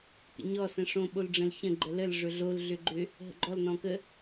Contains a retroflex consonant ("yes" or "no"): yes